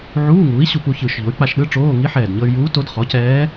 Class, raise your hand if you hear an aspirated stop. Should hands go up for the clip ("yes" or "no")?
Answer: no